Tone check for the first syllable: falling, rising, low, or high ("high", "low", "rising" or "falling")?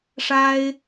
high